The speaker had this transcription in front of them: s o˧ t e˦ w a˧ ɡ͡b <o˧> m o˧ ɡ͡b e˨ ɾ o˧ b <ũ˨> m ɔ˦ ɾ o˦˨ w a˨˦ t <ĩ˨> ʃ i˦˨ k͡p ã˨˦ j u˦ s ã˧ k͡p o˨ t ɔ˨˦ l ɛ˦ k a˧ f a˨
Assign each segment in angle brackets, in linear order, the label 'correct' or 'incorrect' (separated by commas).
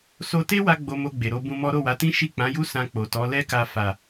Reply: correct, incorrect, incorrect